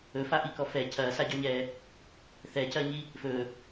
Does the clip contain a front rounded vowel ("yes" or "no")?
no